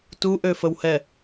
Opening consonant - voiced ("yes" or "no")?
no